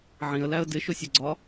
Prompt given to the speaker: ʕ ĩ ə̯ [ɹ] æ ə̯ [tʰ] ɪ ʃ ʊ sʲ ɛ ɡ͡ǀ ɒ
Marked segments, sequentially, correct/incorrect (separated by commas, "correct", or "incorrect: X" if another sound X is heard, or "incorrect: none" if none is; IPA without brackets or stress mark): incorrect: l, incorrect: d